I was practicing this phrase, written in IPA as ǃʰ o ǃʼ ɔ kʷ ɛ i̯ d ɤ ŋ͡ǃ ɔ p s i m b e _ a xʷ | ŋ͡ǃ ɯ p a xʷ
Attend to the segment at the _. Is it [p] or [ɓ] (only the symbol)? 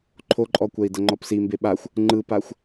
ɓ